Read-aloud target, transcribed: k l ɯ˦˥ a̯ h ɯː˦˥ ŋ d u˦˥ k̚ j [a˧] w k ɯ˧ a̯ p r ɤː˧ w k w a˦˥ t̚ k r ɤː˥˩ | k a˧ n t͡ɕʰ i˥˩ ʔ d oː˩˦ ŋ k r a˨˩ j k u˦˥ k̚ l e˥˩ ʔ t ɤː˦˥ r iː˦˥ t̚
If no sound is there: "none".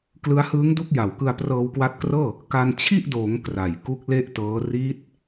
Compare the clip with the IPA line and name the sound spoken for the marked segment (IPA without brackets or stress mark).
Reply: a˨˩